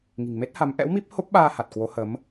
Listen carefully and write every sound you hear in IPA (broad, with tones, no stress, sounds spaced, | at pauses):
ŋ i̤˨˩ ŋ m e˦˥ t̚ h a˨˦ m ʔ ɛ̰˧˥ w m i˦˥ p̚ h o˦˥ p̚ ɓ aː˧ h a˨˩ t̚ k w o˨˦ h ə˨˦ m